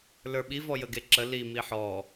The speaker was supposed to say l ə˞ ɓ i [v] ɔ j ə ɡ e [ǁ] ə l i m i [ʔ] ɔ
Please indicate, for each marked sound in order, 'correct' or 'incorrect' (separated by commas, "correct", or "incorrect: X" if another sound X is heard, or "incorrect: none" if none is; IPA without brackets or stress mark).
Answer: correct, correct, incorrect: ħ